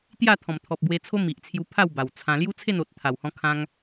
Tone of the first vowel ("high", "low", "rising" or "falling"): falling